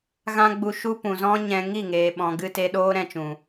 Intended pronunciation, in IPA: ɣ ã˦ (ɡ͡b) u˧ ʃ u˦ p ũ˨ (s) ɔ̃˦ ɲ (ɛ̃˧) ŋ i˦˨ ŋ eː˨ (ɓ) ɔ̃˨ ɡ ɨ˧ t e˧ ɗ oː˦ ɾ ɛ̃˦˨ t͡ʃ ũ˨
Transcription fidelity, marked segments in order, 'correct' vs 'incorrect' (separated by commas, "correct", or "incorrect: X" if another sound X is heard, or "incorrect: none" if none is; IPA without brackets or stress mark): correct, incorrect: z, correct, correct